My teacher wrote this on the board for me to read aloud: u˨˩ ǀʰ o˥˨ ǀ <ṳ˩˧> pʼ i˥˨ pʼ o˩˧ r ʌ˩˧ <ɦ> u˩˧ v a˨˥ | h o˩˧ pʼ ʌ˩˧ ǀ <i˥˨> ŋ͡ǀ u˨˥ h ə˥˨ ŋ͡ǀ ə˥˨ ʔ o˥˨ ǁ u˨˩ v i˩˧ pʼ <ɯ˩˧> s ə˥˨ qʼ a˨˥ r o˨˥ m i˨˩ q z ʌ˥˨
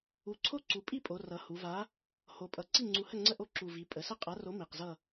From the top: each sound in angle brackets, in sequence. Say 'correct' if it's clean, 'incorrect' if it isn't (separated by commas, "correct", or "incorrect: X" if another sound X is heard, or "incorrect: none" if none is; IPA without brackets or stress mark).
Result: incorrect: u˩˧, incorrect: h, correct, incorrect: ə˩˧